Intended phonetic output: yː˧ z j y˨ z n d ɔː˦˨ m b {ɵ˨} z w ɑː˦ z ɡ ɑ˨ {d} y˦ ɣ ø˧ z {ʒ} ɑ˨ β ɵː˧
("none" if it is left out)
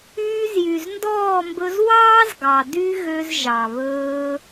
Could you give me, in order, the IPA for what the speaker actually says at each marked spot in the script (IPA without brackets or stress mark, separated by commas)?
ɵ˧, d, ʒ